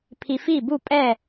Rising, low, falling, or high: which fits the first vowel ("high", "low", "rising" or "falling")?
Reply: low